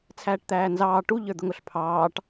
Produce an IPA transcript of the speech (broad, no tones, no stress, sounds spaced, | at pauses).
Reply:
t͡sʰ æː ʈ t̪ æː n z ɑː ʈ u ʎ ə˞ d̪ ʊ ŋ ʊ ɬ pʰ ɑː ʈ